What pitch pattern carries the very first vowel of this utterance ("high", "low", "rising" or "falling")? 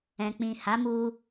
low